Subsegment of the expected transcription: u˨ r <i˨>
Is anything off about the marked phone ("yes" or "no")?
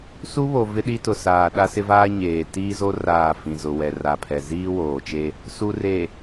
yes